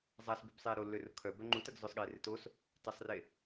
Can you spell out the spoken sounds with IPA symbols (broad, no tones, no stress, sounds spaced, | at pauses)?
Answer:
zˤ a s b y b sˤ eː ɾ o lː ø r ʊ kʰ œ b œ ŋ͡ǃ u t ɐ ɡ z ʊ sˤ ɠ eː r ɪ t o s | t ɐ sˤ r e